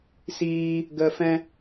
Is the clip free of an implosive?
yes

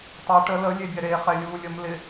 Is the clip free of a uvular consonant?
no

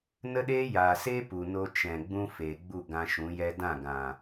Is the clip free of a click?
yes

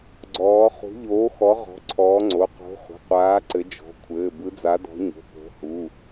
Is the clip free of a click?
no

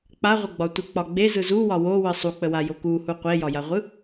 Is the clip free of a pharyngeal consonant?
yes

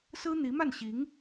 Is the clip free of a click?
yes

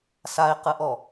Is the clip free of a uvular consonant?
no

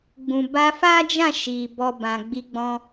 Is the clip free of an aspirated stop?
yes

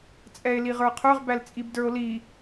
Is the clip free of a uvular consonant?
no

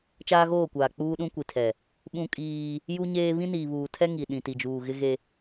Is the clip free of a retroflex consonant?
yes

